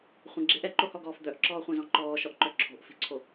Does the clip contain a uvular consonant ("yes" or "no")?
yes